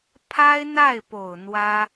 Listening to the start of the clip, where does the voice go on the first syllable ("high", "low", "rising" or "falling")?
high